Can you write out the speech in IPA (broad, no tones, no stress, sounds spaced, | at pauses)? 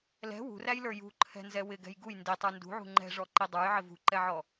l ɛ̤ w ṳ r æ j l ə˞ j ṳ ǃʰ ɛ̤ n z ɛ w ɪ ɡ ɛ̤ j ɡ u j n d i tˤ ə˞ n d ṳ ʕ ṳ ŋ͡ǃ ɛ̤ ʐ ɔ ǃ i dˤ ə˞ j ʕ ɪ v ṳ ǃ ɛ ʕ ɔ